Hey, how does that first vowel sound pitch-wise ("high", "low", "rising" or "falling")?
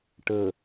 low